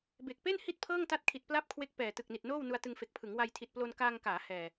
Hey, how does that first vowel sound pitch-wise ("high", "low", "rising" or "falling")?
low